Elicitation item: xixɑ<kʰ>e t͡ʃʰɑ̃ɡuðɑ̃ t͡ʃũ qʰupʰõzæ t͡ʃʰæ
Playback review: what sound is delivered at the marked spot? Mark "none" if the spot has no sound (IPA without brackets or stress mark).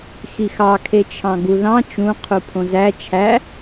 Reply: kʰ